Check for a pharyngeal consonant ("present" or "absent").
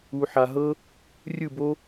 present